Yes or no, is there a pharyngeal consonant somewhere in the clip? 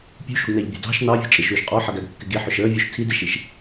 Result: yes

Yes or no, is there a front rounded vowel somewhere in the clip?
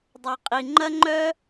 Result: yes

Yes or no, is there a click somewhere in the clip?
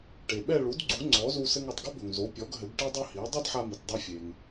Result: yes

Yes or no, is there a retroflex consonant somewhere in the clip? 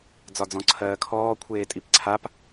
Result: no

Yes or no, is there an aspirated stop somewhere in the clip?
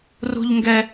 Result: no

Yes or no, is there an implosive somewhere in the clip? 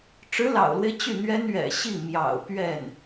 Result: no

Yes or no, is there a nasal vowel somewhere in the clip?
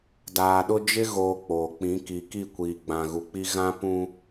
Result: yes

